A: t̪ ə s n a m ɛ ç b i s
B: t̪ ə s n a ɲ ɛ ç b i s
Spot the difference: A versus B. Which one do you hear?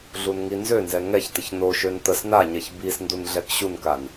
B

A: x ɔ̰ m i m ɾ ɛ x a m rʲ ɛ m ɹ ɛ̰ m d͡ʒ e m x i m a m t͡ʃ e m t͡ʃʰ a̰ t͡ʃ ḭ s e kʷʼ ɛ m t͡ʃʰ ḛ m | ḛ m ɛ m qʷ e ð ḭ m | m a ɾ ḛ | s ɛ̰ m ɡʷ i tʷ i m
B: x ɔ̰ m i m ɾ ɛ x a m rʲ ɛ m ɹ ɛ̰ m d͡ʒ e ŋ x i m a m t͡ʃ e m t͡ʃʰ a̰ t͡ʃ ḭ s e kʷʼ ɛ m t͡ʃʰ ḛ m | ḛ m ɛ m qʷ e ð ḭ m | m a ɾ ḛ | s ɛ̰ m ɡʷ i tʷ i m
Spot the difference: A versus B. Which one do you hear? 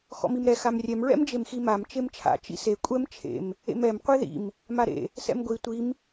A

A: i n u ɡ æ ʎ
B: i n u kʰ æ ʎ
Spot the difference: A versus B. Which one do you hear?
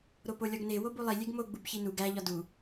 A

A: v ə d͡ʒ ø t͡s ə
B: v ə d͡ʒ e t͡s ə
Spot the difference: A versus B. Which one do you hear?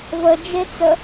B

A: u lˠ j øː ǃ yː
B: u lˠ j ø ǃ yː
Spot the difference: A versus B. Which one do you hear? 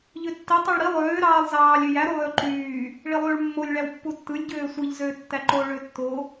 B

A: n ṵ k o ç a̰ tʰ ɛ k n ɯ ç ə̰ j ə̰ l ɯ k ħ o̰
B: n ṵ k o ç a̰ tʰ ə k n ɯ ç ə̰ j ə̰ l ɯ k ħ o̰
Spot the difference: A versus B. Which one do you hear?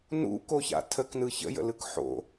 B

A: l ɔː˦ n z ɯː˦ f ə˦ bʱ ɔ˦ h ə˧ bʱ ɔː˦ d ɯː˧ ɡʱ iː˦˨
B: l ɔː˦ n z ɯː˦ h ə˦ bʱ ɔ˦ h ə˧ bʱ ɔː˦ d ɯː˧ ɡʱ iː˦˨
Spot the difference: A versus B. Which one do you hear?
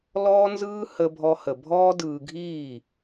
B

